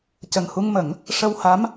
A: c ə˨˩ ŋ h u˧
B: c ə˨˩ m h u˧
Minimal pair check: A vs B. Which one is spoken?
A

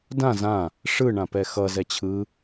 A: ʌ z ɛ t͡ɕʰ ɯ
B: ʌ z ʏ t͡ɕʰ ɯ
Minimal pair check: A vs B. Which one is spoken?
A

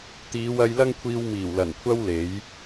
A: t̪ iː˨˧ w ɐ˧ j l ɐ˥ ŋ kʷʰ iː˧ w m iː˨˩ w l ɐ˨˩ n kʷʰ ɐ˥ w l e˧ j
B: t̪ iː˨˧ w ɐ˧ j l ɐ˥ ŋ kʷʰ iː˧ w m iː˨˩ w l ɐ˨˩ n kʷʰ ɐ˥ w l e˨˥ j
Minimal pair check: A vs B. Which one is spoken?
B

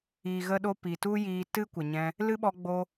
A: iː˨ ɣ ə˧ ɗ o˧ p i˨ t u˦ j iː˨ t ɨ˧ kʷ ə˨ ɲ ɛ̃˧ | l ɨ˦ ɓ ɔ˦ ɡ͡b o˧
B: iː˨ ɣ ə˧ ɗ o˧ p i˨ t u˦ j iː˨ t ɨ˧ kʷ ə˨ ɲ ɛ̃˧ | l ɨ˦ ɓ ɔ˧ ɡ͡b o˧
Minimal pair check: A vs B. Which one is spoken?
B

